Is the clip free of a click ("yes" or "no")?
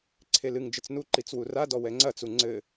no